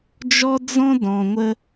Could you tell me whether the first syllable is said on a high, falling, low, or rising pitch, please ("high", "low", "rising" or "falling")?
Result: high